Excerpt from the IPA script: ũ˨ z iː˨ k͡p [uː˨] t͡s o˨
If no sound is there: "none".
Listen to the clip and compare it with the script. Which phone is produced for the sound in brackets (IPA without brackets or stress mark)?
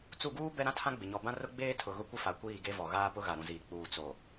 uː˨